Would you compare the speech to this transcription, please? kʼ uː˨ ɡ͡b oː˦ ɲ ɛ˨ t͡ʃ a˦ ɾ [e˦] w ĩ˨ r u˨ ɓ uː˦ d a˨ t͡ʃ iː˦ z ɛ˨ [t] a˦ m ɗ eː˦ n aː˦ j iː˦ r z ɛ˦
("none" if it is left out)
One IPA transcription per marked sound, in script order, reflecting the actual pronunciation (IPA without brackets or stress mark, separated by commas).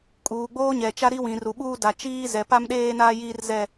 i˦, p